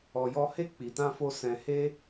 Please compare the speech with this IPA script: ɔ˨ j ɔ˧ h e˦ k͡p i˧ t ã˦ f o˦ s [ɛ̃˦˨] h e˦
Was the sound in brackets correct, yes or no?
no